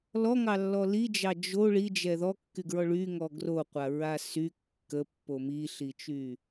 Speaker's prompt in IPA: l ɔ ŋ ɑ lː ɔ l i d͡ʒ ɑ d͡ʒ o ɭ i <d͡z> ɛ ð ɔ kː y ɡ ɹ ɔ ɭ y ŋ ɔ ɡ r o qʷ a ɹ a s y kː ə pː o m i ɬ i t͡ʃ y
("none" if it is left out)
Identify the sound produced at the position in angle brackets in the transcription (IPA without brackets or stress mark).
d͡ʒ